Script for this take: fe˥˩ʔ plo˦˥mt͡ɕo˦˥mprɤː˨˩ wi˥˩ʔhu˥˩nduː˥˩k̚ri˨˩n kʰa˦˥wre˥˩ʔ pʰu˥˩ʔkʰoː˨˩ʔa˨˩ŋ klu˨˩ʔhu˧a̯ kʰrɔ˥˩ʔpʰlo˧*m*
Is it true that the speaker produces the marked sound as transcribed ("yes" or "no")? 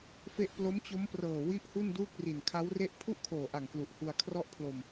yes